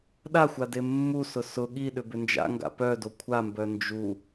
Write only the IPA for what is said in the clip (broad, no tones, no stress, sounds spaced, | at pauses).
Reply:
ɗ a xʷ a d e mː u s ʊ s ʊ ɠ i ɗ ʏ b ʏ n d͡ʒ a̰ ŋ ɡ a̰ p œ d o kʷʰ a m b œ n d͡ʒ u